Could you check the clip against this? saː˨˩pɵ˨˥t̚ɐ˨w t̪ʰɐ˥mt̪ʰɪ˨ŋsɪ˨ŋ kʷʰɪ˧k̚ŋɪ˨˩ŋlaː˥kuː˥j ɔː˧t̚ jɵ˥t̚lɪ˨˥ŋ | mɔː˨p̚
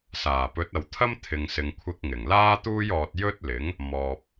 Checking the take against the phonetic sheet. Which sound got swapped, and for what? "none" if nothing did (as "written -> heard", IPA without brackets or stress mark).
k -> t̪